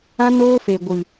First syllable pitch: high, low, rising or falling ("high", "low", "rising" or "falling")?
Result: high